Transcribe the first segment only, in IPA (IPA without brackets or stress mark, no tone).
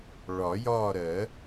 ɭ